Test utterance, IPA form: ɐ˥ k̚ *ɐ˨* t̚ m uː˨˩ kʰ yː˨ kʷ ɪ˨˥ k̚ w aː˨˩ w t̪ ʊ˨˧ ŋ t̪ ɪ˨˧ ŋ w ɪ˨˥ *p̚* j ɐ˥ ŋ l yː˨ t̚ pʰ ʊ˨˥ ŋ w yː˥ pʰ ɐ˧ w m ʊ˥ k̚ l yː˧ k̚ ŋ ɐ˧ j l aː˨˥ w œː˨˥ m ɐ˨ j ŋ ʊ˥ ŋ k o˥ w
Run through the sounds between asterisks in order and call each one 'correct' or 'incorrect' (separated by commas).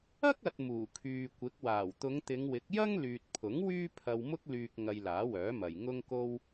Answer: correct, incorrect